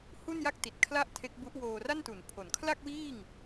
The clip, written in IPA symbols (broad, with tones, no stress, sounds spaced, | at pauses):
h u˥˩ n j a˥˩ k̚ t i˨˩ t̚ kʰ l a˥˩ ʔ tʰ e˦˥ k̚ b u˦˥ ʔ w oː˧ r a˥˩ n t u˩˦ n pʰ o˩˦ n kʰ l a˥˩ k̚ w iː˥˩ ŋ